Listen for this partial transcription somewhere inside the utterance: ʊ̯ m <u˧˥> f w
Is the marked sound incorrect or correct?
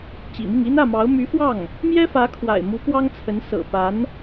incorrect